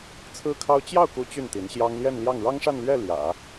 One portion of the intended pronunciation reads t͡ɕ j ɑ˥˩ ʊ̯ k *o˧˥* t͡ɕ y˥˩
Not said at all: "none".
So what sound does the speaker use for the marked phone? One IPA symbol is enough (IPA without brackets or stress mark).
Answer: u˧˥